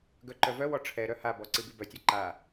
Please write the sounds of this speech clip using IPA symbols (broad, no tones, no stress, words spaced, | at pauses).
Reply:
ɡœǃœvœwɔ ʈ͡ʂʰɛ ɾœhabɔ ǀibibœtʲɔ ǃa